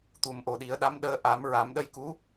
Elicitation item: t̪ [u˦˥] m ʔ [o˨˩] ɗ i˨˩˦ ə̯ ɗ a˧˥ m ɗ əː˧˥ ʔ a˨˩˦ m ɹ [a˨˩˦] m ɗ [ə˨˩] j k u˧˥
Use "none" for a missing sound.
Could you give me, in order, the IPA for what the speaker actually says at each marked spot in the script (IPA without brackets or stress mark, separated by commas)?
u˨˩, o˨˩, a˨˩˦, ə˧